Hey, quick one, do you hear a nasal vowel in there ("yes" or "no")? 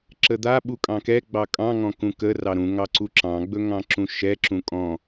yes